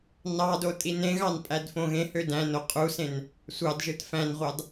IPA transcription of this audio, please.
n ɑ d o tʼ i n ẽ ɣ ɑ n pʼ æ d f õ ɣ ẽ h ø d æ̃ n o qʼ u s ẽ n | sʷ ɑ d ʒ ɯ t f æ̃ n ʁʷ ɑ d

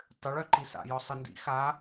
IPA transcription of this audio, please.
tˤ ʏ ɭ œ ǃ i s a̰ j ɔ sˤ ə n d ḭ x a

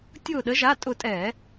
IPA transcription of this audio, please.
tʲ ʊː˧˩ ɗ ə˨˦ ʒ a˩˧˩ tʼ ʊ˧˩ tʼ ɛː˧˩˧

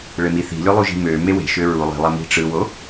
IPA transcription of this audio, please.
ɭ e m i θ i̤ lʲ o lˠ u ʒ i̤ m ø m e w e̤ ʃ ø ɹ u lˠ i̤ lˠ æ m i̤ ʈ͡ʂ ɯ w o

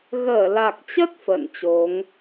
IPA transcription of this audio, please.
ɣ əː˧˩ l a˨˩ k̚ t͡ɕ ə˦˥ t̚ f ə̰ː˧˨ n t͡ɕ o˨˦ ŋ

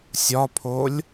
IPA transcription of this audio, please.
sʲ ɒ pʰ o lʲ

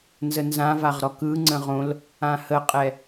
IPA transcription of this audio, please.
n z ə n z ã v a ʁ ɾ ɔ k ɯ ŋ͡ǀ ə̃ ʁ õ l | ã h ə qʼ ɛ

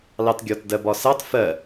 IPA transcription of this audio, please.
l ɑ t ɡʲ ɒ t d ɜ b ɒ s ɑ t f ɜ

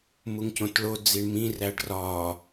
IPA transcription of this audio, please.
m u ŋ c õ t ɭ o d͡z i ɳ m ĩ r æ ɖ r ɒ

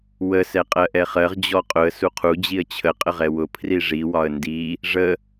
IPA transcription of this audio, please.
w ə s ɛ qʼ ɜ ʔ ɛ χ ɜ ʁ d͡ʑ ɔ qʼ ʊ ə̯ s u qʰ u d͡ʑ i ə̯ t͡ɕʰ ə qʼ ə ʁ ɛ w ʊ pʰ r i ʐ i w ɒ ə̯ n d i | ʐ ə

